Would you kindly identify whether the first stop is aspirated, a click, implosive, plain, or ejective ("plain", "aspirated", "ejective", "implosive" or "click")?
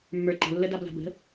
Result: click